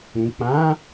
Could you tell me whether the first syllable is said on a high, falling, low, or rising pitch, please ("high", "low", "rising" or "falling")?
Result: low